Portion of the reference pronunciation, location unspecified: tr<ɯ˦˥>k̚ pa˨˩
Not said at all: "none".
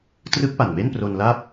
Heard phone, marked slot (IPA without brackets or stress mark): ɯ˦˥